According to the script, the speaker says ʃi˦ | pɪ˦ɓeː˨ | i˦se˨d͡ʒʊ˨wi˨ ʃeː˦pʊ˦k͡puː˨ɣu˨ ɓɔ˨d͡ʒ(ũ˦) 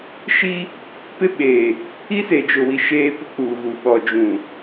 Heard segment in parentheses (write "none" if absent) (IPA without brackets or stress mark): ũ˨